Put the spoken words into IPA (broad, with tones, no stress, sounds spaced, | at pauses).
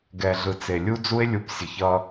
ɡ ɛ˨ ɮ ɯ˨ t͡s e˨ lʲ u˦ d͡z u˦ e̯ lʲ u˨˦ p sʲ ə˨ ç ʌ˦